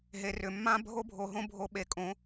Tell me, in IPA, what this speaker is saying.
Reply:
ɦe˨rʏ˨mːã˦ bʱo˦bʱo˨ɦõ˦ bʱo˨ɓe˨kʼõ˨˦

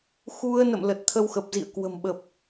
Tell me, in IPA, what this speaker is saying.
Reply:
xu˧ə̯nə̰˧˨m lə˨˩t̚t̪ʰə˧wxə˨˩p̚ zḭ˧˨ə̯kwə̤˨˩m ɓə˨˩p̚

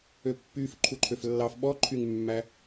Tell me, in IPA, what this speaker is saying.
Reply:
øpːyf ǃʰuǃʰøflːɑf ɓɔ ǃʰyŋmːæ

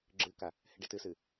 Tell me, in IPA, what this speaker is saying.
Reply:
ɡ͡ǁɨka | heɖetɨsɨ

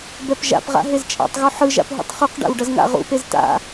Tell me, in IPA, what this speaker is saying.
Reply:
bɛpʒa̰pʁa̰ ɦezt͡ʃʼa̰tˤɣo ħɯʒa̰p ɦṵtˤχuqɖa̰w ɖʌzŋa̰ʁṵpez ta̰

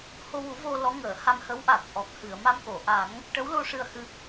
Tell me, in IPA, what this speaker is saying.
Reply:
ho˧wu˨˩˦vo˧ lɔ˧˥ŋəː˨˩˨ ha˧mhə˧˥wʔa˨˩k̚ʔɔ˨˩k̚ hɨ˨˩˨ə̯ma˧mko˨˩˨ʔa˨˩˦ŋ | ʈə˧˥wlo˧ ʂɨ˧ə̯hɨ˧

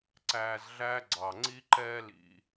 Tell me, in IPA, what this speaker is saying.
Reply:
ǀæː˨zɮæː˦ ɡ͡ǀɑ˩ŋ͡ǀi˦ ǃɛː˥lḭ˨

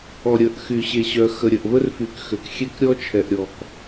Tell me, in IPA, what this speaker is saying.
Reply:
ɔ˨ɾʲə˨ʔ xy˨ɕe˨ɕœ˨ xə˨ɾʲə˨ʔvə˦rfy˨k xø˨kxʲe˦k ɾʲɔ˦t͡ʃʰɛ˨ʔɾʲɔ˨k

